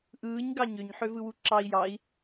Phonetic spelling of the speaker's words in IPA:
ʔɯːɲ ɡɑɲøɲ ħøvɯwuǁɑi̯ jɑi̯

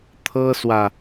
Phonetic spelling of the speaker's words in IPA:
t̪ʰɤ˦swä˨

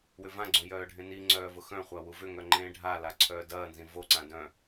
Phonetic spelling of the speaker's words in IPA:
wʏvãɡ͡ǀõ jœːɖʱẽniŋ͡ǀœː vʊxœ̃χʷa wuvʏŋœ ŋ͡ǃẽːɖʱala ǀʰœːdɐːnzĩ voǀã dœ̃

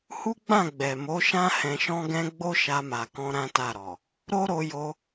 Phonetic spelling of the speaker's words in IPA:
hu˦ɡ͡bã˦˨ ɡ͡bɛ˨mo˨˦ʃã˦ hɛ̃˧ʃɔ̃˦ɡɛ̃˦ ɡ͡bo˦ʃa˧ma˨kɔ̃˧ ɾã˦ta˦˨ɾɔ˨ | ɾo˦ɾo˧jo˧

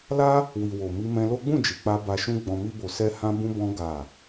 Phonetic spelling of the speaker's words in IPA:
la˦ | wi˨wo˨ mi˧mɛ̃˧lo˦ ɡ͡bũ˦˨d͡ʒi˨k͡pa˧ ba˧ʃũ˦ ɡ͡bɔ̃˧mi˦bo˧sɛ˦ hã˦bũ˦bɔ̃˦ ɡa˦˨

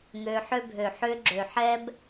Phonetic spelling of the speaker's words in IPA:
ŋøː˧ħø˦ bʱø˨ħʏː˧ ɡ͡ǁøː˨ħɛː˧b

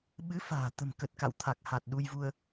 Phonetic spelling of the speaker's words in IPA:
ɓɨ˨˦fa̤ː˨˩ t̪ə̤˨˩mkə˨˩t̚ ka̰˧˨wt̪ʰa˨˩k̚ ha˨˩t̚ ɗu˧jvu˧ə̯

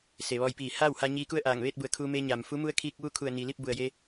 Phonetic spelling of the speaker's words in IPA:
se˩ʋɔː˧jpiː˧˩ haː˥˨wha˧ɲiː˧ ku˥˨ə̯ʔaː˧˩ŋʋeː˥˨t̚bu˩˧ə̯ kʰuː˧meː˧ɲaː˩m fu˧˥mu˧˥ə̯ kʰi˧k̚ ʋu˥˨kʰu˧˩ə̯niː˩ li˥˨p̚bu˩ə̯je˧

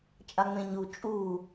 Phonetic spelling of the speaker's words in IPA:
t͡ʃʼaŋ͡mẽɲu t͡ʃʼu

